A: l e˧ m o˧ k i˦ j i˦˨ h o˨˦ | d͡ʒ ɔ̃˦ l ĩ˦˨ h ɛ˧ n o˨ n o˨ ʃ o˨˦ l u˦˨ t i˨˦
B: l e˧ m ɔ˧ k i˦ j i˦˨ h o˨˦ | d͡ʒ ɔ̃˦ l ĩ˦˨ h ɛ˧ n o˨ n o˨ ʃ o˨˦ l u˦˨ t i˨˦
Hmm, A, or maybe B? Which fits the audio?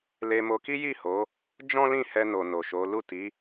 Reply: A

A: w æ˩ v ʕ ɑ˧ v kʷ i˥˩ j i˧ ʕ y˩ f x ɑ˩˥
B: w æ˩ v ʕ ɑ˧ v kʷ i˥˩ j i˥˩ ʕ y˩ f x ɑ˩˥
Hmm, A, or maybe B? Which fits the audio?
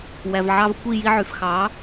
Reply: A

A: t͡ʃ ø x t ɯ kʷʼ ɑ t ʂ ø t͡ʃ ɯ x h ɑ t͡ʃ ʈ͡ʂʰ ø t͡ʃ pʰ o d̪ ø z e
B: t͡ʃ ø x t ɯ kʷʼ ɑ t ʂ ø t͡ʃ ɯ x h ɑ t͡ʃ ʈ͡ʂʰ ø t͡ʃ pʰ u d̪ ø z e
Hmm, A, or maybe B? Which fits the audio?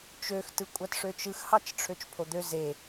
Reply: A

